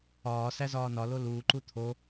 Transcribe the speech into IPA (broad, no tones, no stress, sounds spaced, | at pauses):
ɒː s æ z ɒː n ɒ l o l uː ǃ u t̪ʰ o